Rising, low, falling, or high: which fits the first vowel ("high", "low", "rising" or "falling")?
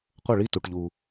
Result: falling